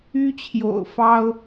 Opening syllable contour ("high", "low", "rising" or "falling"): high